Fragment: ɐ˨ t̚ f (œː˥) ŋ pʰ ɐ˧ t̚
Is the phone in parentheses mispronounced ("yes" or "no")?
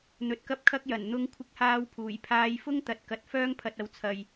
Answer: no